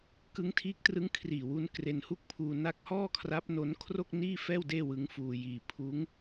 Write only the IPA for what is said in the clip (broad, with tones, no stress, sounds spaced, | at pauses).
k ɯ˦˥ ŋ tʰ iː˦˥ k̚ t r ɯ˦˥ ŋ kʰ r iː˨˩ w u˧ n k r e˧ n h u˥˩ k̚ pʰ uː˧ n a˦˥ k̚ h ɔː˥˩ kʰ r a˦˥ p̚ n o˦˥ n kʰ r o˥˩ k̚ n iː˥˩ f ɛː˥˩ w d eː˥˩ w ɯ˦˥ ŋ f uː˧ j iː˧ pʰ uː˦˥ ŋ